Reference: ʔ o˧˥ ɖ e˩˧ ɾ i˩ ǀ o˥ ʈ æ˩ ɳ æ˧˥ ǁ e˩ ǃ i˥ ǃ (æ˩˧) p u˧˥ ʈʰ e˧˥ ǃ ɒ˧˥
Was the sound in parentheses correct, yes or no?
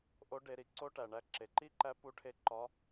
no